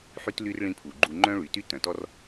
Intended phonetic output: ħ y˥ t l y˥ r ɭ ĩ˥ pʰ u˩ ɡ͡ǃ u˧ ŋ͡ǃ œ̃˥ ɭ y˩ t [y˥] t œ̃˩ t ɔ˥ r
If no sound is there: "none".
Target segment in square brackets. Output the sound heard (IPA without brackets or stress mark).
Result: y˥